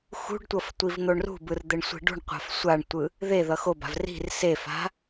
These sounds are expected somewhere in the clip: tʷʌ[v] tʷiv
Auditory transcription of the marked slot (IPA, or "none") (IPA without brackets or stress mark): f